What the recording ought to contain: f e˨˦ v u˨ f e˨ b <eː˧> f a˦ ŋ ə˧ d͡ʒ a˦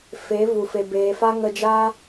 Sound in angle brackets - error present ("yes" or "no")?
yes